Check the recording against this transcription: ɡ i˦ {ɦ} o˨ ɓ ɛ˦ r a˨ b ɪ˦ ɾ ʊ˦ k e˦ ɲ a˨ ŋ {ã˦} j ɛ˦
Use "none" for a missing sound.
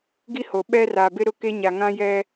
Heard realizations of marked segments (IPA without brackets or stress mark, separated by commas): h, ã˦